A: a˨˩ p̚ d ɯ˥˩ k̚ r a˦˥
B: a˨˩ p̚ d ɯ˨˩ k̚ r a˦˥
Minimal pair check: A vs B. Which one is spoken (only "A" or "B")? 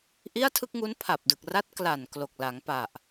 B